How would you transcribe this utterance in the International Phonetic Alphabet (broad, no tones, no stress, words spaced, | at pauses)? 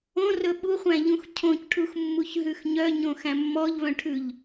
õrɵ ɓuχʷæ̃ʎũx cʰõcʈʰuxmːuç ɦʉxɲœɲõ xæ̃mːɔʎβœ̃ʈʰʉʎ